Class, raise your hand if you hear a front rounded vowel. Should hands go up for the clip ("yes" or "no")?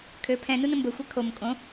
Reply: yes